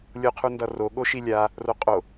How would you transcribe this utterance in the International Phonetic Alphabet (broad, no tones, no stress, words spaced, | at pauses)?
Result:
lʲoqʰundʌro ɠoʃilʲa | roqʼo